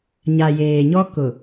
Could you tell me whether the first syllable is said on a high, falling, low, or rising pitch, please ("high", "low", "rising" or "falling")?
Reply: low